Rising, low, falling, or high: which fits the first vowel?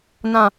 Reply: low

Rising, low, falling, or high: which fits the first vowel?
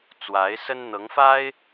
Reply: rising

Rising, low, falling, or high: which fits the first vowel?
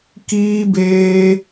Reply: high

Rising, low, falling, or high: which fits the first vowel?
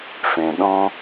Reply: low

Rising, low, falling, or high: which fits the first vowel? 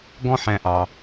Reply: high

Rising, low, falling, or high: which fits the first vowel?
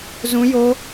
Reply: high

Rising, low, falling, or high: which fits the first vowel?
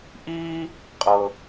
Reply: high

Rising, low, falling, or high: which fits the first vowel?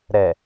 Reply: low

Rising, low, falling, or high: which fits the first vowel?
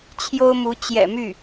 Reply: high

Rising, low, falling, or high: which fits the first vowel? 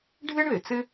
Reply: high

